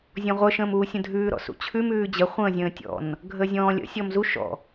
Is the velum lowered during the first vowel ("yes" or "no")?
yes